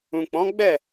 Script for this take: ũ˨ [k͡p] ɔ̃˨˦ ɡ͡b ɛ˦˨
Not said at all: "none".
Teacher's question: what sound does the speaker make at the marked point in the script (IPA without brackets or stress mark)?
k͡p